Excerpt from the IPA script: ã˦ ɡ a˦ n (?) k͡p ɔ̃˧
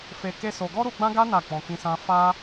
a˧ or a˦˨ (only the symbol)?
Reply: a˦˨